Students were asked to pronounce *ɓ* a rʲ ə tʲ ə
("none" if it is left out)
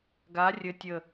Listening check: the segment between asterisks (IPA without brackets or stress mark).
ɡ